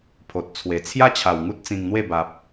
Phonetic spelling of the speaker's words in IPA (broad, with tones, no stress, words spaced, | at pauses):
pʰo˨t̚t͡sʰwe˨˩ t͡sʰja˦t͡ɕʰa˨˩w ŋu˦t̚t͡sĩ˧ŋn̪we˥˧ ba˨p̚